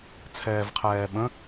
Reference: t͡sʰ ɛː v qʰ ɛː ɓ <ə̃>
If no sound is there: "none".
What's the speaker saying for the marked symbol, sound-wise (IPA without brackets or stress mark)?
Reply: ə̃